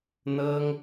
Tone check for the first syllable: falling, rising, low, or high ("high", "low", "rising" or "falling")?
high